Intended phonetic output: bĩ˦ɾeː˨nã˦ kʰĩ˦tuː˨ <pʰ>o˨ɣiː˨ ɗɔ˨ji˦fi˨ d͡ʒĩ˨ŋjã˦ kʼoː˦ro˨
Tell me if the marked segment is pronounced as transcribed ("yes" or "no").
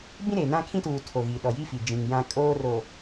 no